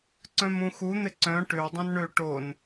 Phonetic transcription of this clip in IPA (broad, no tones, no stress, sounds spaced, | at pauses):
ǀ œ̃ m ũ x u n̪ ɪ ǀ œ̃ ʈ ʏ w dˤ ũ n ɳ ø ʈ o n